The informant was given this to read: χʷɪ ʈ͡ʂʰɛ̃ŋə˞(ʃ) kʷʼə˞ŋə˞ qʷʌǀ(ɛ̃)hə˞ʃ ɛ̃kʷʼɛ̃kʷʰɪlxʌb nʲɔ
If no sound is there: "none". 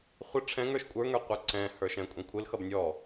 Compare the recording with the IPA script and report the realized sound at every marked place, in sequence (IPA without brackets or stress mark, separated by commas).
ʃ, ɛ̃